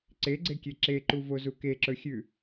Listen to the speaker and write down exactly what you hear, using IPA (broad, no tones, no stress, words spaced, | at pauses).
ǀeɡ͡ǀekʲe ǁeǃuvozu keǁɵxʲʉ